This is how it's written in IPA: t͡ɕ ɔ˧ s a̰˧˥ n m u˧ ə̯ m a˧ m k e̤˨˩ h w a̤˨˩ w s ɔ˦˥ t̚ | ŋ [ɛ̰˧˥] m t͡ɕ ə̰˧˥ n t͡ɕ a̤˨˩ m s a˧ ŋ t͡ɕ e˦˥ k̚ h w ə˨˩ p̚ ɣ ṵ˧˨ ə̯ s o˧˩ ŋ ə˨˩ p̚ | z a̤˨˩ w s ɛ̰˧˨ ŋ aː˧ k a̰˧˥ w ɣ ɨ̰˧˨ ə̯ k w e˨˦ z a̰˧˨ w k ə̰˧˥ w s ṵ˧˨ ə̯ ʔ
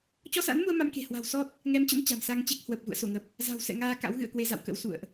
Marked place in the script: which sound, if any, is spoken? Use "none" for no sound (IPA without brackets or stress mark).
ɛ˨˦